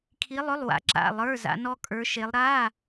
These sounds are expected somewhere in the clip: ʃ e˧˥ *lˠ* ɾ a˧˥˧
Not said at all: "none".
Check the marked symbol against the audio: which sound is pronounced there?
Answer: lˠ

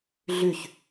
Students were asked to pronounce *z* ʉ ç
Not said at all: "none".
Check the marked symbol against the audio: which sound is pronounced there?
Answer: ɮ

